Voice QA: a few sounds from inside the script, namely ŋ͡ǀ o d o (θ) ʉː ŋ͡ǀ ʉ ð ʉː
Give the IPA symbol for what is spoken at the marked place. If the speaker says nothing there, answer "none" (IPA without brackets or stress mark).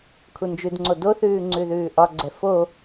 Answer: θ